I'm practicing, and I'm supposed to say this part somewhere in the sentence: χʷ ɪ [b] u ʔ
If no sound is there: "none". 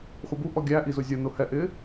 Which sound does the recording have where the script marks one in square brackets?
b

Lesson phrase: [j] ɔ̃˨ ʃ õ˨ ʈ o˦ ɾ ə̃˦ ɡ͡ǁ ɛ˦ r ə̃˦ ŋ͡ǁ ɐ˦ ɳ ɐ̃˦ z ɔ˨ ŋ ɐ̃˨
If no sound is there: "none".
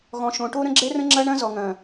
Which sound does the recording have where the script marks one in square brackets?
ɣ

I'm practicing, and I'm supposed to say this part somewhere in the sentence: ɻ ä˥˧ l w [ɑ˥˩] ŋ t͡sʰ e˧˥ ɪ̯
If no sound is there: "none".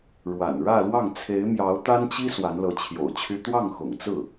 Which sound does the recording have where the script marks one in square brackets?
ɑ˥˩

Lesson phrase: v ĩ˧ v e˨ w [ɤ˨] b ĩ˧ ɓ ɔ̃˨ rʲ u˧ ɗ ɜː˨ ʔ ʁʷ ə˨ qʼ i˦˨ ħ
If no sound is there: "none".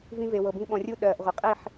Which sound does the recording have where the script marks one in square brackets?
ɤ˨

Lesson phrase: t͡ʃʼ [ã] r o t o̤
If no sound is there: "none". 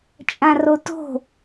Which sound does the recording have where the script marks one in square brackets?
ã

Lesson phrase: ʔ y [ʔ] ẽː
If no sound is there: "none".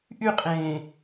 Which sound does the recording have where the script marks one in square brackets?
qʼ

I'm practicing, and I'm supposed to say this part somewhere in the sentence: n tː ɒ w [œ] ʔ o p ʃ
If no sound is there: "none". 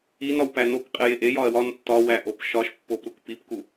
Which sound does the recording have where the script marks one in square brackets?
æ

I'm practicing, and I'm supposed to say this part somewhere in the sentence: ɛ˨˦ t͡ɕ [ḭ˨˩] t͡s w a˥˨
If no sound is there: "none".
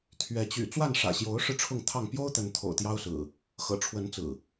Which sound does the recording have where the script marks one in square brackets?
y̰˨˩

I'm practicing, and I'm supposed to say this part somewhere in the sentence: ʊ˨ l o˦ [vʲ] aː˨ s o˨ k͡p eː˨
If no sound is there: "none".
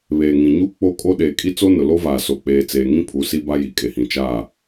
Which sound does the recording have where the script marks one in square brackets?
v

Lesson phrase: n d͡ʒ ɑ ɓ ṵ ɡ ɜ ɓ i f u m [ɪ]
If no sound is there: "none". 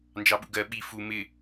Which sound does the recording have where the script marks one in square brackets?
ɪ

